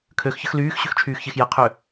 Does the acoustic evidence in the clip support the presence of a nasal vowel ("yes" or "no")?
no